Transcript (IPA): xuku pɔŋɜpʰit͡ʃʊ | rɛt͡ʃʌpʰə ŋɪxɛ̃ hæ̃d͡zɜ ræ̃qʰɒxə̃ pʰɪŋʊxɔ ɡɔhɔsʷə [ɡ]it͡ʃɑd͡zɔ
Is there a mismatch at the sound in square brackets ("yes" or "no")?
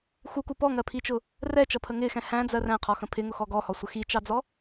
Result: yes